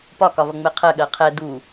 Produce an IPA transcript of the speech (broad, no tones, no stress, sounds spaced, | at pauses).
p ɒ k ɒ v ʌ ŋ͡m ɛ qʰ ɜ ɠ ɜ qʰ ɛ d u